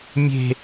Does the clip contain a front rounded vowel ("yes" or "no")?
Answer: no